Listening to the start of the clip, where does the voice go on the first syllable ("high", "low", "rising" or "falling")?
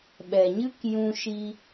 low